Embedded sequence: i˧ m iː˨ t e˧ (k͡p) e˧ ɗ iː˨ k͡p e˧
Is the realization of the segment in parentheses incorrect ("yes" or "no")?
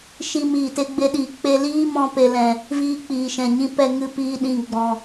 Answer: yes